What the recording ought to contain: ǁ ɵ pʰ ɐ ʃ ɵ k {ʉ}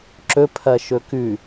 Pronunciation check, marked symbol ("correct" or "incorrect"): correct